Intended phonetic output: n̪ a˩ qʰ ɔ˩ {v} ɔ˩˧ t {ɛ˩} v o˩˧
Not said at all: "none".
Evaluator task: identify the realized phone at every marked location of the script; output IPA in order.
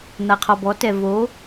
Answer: b, ɛ˩

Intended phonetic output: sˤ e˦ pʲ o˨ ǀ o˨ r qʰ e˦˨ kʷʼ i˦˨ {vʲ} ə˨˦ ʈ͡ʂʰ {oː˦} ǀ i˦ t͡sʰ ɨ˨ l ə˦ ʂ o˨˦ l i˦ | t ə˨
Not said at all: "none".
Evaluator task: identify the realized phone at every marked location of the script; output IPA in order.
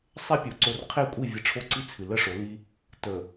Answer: vʲ, o˦

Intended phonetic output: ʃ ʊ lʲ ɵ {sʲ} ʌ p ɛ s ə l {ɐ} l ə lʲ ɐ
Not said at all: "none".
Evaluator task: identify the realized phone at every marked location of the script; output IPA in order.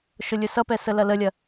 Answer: s, ɐ

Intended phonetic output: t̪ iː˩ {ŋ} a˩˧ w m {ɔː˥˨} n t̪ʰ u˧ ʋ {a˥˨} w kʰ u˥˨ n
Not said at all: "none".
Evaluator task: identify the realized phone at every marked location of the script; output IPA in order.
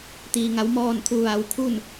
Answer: ŋ, ɔː˥˨, a˧

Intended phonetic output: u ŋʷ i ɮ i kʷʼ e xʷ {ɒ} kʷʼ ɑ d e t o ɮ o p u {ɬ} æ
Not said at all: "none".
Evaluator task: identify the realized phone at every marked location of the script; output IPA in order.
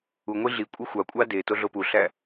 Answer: ɑ, ɬ

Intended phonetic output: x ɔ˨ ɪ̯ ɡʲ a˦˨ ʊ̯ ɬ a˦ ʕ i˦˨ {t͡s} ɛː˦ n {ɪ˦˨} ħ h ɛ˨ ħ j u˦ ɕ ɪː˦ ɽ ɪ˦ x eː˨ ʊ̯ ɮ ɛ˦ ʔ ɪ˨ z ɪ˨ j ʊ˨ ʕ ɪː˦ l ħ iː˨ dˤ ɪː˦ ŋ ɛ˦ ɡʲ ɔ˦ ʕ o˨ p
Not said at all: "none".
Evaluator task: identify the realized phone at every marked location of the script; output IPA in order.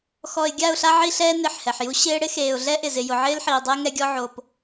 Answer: ɬ, ɪ˦˨

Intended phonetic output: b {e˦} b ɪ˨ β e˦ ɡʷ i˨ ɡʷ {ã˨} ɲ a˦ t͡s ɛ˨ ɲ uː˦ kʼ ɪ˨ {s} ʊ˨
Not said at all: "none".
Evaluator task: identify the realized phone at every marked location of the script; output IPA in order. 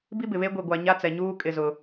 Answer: i˦, a˨, z

